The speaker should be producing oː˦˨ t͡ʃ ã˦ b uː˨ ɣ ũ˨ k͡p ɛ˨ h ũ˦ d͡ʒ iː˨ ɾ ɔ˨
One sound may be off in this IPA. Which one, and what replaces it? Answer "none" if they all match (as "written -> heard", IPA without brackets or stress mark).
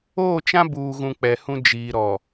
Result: none